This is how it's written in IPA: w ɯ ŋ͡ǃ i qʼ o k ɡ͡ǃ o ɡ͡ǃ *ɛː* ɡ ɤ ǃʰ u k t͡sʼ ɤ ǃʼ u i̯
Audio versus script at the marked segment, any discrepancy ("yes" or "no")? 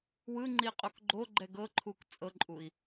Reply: yes